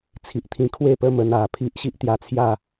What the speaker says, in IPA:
t͡sʰi˨ʔt̪ʰĩ˧ kʰwe˥˧pə˥˧mə˧n a˨˩pʰi˦ʔ ɕi˦ʔt̪ja˧t͡sʰja˥˧

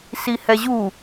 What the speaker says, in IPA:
sihɛʑu

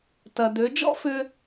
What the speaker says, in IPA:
tɐ˩ dø˩˧ d͡ʒɔ̰˥fʏ˧

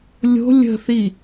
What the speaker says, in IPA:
lʲo̤ lʲə̤θi

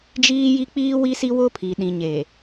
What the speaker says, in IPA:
d͡ʒiː˦ji˦ k͡piː˦ wi˦si˦wʊ˦pʰi˨ ɗĩ˨ɲe˨

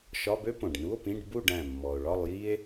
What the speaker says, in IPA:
ʃɒ˧˥˧bø˥ põ˩ɖnu˧˥˧o̯pĩ˧˥˧ɖ bu˥˨ɖæ̃˧˩ mːɔ˩o̯ɭɒ˥˨lˠji˥e̯

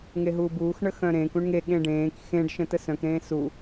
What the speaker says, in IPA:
ŋeɦuːbuːx ɳəxœ̃ɾẽːk ũɳŋe ɠẽɖẽːk xẽɖ ʃə̃təsœ̃k ɾẽːsu

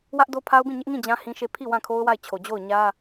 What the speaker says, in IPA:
wä˦ʔ do˦pʰa˦ʊ̯bĩ˦˨ ɲɪ˦ʔŋĩ˦˨ d͡ʑã˦ hĩ˦ʃe˦˨ pʰi˦˨ wã˦˨kʰo˦ʊ̯wa˦˨ɪ̯t͡ɕʰo˨ d͡ʑo˦˨ʊ̯ɲä˦

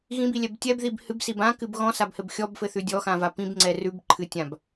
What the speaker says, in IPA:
ɣĩbilʲɛb tʲɛbðib hɨbsib ãkɨb ɣɔ̃sabhɘb xʲɔbfɘθʉ dʲɔxãva pĩbŋ͡ǀɛ rʉbǃʰɨtʲãb

